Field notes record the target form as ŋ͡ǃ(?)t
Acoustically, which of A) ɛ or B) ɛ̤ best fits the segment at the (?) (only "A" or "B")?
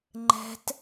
B